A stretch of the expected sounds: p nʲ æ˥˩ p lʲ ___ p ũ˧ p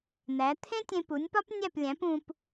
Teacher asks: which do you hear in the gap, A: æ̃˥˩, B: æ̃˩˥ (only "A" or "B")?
B